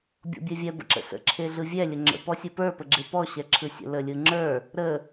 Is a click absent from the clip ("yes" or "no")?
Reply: no